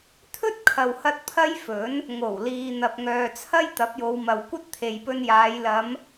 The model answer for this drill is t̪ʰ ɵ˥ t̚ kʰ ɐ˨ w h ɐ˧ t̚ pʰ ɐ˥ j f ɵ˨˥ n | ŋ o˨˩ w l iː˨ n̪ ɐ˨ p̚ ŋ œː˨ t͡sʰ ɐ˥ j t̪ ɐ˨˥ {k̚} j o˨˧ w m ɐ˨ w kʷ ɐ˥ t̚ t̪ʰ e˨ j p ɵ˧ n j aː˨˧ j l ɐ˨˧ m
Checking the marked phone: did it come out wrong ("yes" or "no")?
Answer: yes